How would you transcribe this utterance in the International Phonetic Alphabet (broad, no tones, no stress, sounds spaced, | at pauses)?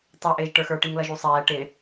tˤ ɛ ʔ ɪː ʒ ʈ ə˞ x ə˞ ʈ i ŋ l ʌ ʒ u sˤ ɛː ʈ ɪ